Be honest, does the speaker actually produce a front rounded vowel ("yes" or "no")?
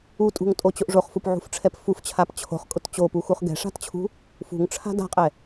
no